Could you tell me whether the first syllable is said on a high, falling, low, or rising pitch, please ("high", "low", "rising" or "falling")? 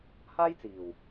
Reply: high